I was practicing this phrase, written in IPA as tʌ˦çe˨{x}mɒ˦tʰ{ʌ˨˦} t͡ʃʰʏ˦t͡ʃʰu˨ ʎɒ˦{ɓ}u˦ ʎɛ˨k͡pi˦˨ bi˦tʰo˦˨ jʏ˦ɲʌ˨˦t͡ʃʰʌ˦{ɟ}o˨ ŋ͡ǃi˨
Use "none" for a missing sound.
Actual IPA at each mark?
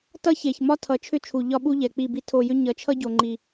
ç, ʌ˨˦, ɓ, ɟ

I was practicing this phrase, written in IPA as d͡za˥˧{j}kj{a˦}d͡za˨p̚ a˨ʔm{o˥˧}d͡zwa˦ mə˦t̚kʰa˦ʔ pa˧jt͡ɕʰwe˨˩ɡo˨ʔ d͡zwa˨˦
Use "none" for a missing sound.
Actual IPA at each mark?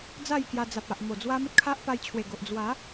j, a˧, o˨˩

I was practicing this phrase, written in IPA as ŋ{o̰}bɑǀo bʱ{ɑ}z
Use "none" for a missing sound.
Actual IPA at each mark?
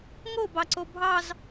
o, ɑ

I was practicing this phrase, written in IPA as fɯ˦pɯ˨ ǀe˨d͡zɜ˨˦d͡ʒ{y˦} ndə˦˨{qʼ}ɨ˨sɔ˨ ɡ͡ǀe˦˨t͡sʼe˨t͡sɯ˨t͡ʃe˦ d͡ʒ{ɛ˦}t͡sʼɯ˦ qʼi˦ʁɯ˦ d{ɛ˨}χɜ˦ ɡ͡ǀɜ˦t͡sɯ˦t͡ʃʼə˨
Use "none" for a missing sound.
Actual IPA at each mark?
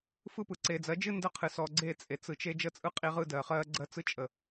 ɨ˦, qʰ, ə˦, ɜ˨

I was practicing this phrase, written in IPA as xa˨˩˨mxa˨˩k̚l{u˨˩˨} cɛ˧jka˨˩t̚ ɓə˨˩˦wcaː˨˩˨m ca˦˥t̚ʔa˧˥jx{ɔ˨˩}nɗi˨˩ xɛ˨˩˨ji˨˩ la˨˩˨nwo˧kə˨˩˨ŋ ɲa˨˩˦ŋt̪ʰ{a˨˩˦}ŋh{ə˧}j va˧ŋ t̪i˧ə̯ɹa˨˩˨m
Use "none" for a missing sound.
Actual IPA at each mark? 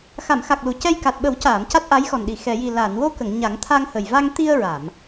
u˨˩˨, ɔ˨˩, a˧, ə˨˩

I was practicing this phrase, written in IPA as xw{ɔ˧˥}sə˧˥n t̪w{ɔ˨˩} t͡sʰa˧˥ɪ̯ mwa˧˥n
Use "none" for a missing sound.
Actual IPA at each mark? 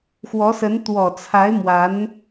ɔ˧˥, ɔ˨˩

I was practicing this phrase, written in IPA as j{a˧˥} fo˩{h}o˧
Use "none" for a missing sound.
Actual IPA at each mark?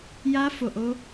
a˧˥, ʔ

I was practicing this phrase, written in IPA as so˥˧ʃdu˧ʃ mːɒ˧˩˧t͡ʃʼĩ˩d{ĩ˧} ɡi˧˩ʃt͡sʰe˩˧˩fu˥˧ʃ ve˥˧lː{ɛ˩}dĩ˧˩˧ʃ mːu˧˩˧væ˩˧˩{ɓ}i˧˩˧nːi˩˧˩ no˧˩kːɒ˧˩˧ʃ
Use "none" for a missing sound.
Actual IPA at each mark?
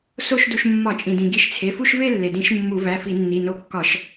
ĩ˩, e˩, f

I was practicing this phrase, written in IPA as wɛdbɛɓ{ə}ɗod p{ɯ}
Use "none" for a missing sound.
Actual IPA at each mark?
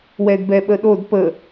ə, ə

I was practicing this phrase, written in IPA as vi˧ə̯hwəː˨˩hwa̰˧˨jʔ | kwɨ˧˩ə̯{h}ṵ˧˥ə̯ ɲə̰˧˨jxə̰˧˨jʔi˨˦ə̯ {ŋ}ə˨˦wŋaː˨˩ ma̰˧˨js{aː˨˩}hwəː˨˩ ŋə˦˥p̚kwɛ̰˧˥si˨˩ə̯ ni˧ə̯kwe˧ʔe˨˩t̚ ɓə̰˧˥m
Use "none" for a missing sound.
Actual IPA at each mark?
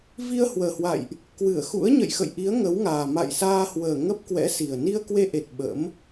x, ŋ, aː˧

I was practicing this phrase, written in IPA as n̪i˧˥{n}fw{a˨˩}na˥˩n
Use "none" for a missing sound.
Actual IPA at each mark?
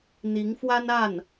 ŋ, a˥

